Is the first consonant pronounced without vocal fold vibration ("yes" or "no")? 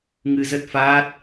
no